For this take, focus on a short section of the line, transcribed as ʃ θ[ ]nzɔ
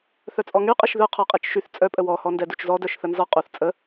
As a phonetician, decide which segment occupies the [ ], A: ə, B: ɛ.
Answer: A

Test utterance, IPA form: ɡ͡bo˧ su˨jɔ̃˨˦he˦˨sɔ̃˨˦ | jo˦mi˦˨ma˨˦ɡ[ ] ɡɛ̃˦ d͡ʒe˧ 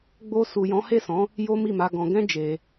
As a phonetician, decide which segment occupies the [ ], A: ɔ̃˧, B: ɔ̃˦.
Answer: A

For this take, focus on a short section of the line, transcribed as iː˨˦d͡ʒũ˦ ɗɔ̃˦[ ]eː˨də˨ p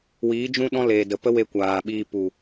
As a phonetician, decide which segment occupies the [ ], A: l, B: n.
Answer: A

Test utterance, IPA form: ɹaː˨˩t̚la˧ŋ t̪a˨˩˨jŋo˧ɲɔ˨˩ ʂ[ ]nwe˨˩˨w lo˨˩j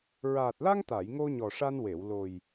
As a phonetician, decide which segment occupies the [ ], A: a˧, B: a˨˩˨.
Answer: A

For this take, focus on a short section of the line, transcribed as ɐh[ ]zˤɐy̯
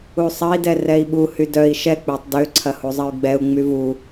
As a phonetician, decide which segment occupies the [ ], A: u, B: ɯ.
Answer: A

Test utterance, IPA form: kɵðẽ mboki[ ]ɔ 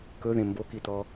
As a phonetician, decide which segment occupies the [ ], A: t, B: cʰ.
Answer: A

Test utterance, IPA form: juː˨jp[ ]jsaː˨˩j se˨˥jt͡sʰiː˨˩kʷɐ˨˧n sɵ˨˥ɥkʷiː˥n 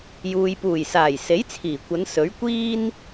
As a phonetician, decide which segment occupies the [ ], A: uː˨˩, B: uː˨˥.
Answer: A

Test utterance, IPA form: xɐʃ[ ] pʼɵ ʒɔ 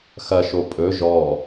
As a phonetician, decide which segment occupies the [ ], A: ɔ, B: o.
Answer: B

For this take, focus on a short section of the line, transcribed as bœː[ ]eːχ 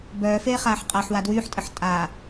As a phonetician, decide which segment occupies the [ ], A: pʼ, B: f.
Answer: B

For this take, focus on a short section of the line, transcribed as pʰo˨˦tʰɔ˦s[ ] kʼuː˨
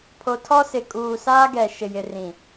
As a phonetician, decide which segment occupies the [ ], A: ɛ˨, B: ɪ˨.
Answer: B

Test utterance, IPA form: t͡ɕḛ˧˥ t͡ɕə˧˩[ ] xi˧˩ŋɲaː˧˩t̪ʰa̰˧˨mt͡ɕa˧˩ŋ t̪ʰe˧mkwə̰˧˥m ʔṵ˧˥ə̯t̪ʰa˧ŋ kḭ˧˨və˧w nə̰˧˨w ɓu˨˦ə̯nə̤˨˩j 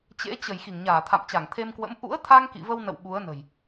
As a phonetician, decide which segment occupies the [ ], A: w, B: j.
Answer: B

